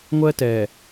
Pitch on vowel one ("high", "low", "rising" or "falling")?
high